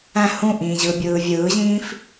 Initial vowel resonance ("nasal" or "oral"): nasal